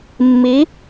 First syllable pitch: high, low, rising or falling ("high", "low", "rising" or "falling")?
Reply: rising